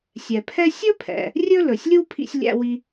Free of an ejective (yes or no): yes